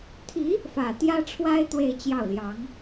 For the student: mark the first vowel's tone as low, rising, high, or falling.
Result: rising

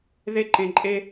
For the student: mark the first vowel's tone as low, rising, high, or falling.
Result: high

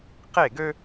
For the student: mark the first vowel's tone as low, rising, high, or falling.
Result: falling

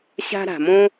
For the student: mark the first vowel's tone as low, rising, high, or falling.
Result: high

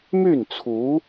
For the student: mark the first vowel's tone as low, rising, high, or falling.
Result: falling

